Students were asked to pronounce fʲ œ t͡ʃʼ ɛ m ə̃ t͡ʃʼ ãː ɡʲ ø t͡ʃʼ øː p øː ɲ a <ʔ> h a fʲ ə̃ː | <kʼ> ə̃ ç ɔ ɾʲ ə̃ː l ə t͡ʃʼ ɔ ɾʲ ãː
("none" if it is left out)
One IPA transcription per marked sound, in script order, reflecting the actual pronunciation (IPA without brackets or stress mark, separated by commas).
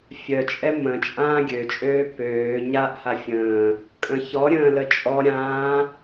ʔ, kʼ